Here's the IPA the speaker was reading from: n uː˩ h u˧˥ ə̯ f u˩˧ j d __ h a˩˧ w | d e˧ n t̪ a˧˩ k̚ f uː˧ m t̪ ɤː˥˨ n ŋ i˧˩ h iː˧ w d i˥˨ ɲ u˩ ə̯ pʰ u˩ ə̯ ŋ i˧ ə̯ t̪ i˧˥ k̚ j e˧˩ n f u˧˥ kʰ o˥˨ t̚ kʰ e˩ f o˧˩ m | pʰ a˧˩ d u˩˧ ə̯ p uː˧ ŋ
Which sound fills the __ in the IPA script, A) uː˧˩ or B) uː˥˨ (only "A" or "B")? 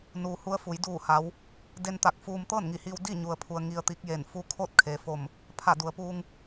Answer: A